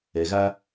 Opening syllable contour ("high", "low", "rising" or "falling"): low